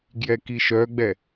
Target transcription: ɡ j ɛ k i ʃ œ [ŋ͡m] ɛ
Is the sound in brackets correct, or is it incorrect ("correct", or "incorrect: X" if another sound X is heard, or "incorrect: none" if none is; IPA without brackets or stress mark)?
incorrect: ɡ͡b